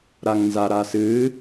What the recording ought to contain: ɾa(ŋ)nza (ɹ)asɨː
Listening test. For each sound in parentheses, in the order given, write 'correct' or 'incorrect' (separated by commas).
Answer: correct, incorrect